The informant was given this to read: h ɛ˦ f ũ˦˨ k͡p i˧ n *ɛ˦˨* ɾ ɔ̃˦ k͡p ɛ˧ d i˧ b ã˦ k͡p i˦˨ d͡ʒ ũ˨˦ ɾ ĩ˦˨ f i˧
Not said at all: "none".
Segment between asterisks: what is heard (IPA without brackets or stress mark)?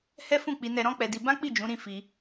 ɛ˧